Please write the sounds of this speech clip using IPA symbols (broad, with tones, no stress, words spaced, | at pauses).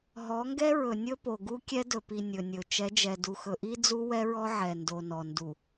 ɦɔ˨˦ŋɡɛ˦ɹɵ˨ nʲɵ˦po˨ɡu˦ kʲɛ˦dɵ˨pi˨ nʲɵ˨nʲɵ˨ t͡ʃɛ˨˦d͡ʒɛ˨du˨ xɵ˨ʔi˦d͡zu˦ wɛ˦ɹɔ˦ ʕɛ˨ndo˨nɔ˨ ndu˨